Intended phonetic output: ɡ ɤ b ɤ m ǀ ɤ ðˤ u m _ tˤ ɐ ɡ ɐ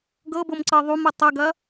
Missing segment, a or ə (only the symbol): ə